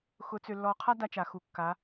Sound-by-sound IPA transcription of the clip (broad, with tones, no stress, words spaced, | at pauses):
xʊ˧˥ t͡sø˧lːɔ˧ qʰa˥da˧t͡ʃa˩xu˩ kːa˩˧